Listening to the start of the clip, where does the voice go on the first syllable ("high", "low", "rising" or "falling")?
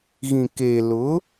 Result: low